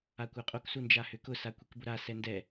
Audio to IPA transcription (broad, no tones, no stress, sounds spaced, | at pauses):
a kʷ a qʼ o k s u n d͡ʒ a h ʏ k ʊ s a kʷ i k b ʊ ɾ a s ɛ n d ɛ